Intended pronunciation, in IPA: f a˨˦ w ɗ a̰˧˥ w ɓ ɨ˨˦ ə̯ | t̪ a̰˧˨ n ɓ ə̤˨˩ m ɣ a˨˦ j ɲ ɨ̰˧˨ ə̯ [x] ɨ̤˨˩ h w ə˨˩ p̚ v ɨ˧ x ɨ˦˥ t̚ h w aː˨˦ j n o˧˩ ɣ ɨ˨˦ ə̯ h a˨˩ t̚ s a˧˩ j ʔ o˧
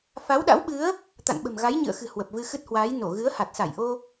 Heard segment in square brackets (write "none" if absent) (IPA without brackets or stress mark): x